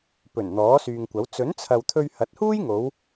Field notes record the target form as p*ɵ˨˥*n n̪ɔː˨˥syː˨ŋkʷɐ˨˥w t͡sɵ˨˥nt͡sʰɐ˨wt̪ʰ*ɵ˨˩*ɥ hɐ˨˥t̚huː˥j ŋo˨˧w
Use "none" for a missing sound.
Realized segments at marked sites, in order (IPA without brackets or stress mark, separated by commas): ɵ˨˩, ɵ˧